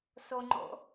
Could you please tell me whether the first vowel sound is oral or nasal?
oral